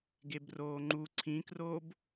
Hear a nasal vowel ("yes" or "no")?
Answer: yes